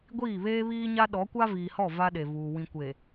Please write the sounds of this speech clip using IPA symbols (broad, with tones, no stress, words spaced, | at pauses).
ɡʷiː˦˨βeː˦βiː˦ɲa˦ ɗɔ˨˦kʷa˦ viː˨hɔ˦˨ va˦ɗe˨vuː˨ wĩ˨kʷe˨